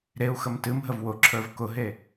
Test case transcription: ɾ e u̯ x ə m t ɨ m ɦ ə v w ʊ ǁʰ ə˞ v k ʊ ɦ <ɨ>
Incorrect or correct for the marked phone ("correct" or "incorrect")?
incorrect